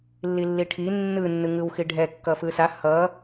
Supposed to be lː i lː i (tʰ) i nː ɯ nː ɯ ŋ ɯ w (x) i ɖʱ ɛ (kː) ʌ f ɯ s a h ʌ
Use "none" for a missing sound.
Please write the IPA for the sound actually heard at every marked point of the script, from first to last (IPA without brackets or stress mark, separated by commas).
ʈʰ, x, kː